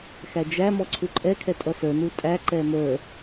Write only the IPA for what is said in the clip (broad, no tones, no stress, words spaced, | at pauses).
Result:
xæd͡ʒæ mɔǀʰuǃʼɛ kʰɛtʼʌsə˞ nutʼæ ǃɛmə˞